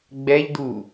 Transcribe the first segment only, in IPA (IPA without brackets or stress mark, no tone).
ɡ͡b